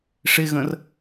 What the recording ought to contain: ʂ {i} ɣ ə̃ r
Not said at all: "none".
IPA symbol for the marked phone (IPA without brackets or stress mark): ɪ